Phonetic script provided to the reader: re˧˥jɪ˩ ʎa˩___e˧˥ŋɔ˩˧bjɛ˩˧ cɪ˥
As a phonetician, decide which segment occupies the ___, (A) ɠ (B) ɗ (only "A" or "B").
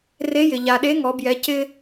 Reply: B